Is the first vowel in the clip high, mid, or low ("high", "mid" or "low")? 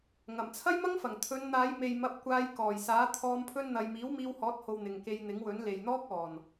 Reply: low